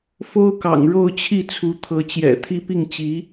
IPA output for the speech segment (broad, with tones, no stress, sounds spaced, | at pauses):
f o˥ ʊ̯ k ɑ̰˨˩ ŋ ɻ o˥˧ ʊ̯ t͡ɕʰ i˥˩ t͡sʰ u˧˥ t̪ʰ ɤ˧˥ t͡ɕ j ɛ̰˨˩ t̪ʰ i˥ p i˥˩ ŋ t͡ɕ i˧˥